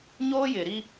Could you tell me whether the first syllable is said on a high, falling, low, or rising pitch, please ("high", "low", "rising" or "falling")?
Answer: high